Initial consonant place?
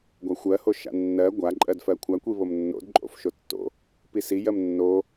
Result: velar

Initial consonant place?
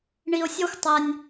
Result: retroflex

